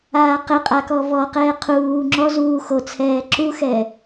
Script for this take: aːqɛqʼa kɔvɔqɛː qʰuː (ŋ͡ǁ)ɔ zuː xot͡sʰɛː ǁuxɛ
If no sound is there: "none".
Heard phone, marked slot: ŋ͡ǁ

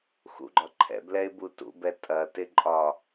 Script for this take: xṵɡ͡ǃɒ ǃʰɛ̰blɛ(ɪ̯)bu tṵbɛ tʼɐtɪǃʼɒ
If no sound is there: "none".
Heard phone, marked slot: ɪ̯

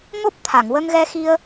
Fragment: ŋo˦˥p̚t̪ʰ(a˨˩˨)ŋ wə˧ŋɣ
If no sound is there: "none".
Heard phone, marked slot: a˨˩˨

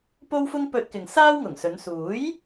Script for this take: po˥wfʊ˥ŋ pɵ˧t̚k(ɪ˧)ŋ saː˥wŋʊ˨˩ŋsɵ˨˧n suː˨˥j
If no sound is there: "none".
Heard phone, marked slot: ɪ˨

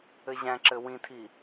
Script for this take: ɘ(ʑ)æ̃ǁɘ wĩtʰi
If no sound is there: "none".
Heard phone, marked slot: ʑ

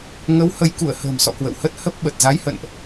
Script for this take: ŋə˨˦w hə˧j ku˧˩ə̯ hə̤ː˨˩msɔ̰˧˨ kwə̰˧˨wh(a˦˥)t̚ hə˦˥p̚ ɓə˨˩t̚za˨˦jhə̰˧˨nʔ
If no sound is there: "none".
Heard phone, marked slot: ə˦˥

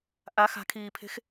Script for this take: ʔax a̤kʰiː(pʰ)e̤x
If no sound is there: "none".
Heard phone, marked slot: pʰ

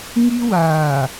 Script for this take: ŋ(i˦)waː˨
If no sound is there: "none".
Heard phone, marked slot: i˦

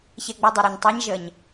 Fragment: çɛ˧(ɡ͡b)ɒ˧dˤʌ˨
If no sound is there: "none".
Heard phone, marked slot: ɡ͡b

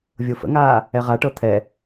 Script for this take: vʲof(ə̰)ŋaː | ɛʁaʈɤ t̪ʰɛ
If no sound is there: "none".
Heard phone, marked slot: ə̰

